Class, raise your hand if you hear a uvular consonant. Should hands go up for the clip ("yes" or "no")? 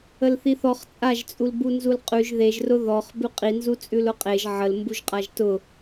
yes